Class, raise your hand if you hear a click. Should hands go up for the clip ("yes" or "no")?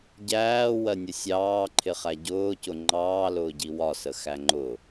yes